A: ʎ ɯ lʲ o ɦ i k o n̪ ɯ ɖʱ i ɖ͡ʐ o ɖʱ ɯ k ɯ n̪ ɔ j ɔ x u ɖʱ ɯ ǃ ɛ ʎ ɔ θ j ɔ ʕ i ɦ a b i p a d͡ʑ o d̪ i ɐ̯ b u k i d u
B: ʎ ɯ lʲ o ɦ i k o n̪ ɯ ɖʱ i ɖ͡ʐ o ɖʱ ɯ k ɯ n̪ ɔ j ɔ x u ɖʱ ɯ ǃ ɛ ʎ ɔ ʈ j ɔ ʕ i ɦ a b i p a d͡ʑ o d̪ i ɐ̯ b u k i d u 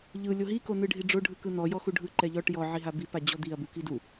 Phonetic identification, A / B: B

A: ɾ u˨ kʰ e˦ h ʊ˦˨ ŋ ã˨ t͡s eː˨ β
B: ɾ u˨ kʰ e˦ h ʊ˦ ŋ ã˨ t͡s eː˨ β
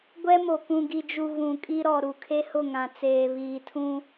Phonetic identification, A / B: A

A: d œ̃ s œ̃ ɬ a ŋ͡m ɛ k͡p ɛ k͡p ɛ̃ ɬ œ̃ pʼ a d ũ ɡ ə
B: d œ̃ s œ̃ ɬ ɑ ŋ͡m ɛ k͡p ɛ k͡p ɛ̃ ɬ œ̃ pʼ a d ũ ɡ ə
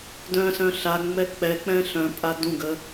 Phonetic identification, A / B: A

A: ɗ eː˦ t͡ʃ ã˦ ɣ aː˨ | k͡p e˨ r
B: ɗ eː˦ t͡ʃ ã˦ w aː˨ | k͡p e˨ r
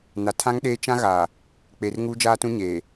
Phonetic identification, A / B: A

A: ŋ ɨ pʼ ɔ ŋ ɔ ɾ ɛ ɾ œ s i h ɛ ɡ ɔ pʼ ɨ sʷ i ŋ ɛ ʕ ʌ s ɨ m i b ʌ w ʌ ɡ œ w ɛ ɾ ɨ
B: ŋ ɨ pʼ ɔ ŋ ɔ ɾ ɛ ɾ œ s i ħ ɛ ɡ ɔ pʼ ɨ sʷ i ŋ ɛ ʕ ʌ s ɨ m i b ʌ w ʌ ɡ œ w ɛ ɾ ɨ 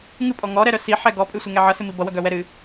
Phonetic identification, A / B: B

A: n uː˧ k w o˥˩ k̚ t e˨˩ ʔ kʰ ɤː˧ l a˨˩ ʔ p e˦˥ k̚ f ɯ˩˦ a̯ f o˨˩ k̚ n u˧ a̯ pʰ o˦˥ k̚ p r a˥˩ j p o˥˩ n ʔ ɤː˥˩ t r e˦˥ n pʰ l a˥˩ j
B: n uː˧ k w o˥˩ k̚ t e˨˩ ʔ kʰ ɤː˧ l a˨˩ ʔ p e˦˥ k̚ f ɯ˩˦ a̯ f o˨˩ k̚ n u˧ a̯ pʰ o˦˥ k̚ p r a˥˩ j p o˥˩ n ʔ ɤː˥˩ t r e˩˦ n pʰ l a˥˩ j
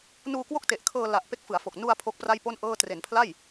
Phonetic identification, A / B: B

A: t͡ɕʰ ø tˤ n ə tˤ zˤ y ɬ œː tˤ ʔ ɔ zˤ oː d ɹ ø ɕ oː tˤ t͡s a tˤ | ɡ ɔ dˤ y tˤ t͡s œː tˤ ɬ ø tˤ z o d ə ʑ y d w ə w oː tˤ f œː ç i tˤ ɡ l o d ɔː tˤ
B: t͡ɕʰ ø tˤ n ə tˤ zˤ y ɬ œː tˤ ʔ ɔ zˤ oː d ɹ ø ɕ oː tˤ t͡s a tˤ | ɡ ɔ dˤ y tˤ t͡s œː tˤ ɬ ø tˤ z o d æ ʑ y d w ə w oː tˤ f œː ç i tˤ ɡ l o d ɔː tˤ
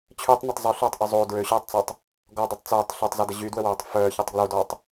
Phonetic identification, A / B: A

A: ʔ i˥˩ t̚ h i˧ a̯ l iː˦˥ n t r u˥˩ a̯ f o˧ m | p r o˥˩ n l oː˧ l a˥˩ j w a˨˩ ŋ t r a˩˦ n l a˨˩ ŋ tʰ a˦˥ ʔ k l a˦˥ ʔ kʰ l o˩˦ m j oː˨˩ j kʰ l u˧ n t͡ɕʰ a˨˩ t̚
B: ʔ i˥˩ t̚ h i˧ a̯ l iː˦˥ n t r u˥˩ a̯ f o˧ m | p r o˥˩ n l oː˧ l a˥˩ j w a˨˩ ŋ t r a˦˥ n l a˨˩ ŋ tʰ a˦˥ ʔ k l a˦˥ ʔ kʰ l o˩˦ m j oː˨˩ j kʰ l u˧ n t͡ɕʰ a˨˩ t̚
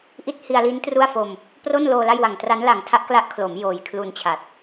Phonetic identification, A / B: B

